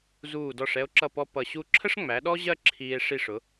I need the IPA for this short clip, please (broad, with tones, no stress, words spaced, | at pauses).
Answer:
zuː˧˩dɔ˧˩ʂ ɛ˧o̯ǁʌ˧˩pɔ˧ pʌ˧˩ɕu˥˧ ǁʰə˥ʂŋ͡mæ˩˧ ɗɔ˥ʑɜ˥˧ ǁʰiː˧e̯ ʂi˧˩ʂʊ˩˧